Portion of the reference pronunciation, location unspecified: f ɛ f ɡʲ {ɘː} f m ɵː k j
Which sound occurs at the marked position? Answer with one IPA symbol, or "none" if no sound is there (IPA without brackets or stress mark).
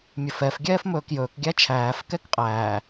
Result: ɛː